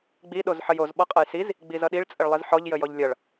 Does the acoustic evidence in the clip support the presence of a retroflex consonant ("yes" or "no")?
yes